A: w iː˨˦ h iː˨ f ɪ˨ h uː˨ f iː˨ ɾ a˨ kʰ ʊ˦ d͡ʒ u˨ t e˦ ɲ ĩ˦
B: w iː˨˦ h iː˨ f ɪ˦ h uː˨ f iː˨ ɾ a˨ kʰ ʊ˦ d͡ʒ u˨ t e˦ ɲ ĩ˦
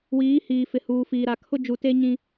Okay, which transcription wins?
A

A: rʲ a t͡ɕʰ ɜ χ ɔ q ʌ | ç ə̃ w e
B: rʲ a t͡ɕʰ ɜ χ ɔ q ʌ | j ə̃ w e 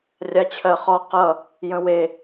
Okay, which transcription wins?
B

